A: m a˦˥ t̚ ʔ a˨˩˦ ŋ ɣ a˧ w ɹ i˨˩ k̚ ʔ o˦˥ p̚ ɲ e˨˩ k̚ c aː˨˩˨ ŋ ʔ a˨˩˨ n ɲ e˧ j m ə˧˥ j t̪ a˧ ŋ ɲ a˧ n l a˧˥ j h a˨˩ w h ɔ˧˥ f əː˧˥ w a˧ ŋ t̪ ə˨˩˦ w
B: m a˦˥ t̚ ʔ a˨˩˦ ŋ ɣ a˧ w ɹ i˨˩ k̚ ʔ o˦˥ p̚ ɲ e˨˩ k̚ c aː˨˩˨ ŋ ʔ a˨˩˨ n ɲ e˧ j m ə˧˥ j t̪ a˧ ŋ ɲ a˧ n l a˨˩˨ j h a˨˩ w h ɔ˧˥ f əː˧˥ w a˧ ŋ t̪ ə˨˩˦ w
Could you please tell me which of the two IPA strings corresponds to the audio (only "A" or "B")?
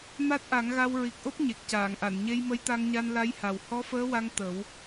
A